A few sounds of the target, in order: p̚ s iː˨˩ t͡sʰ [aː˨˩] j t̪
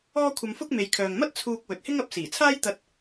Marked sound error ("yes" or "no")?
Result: yes